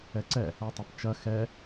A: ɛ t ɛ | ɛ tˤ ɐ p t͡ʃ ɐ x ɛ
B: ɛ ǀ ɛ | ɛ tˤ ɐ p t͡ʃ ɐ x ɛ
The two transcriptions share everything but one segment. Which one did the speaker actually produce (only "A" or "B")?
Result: B